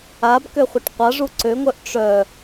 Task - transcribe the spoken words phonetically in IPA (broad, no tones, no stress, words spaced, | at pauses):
abkøχʷɨʈ qʷaʐu ǀøŋʷœʔ ʈ͡ʂœ